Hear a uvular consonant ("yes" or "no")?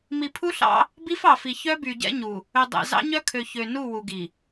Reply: no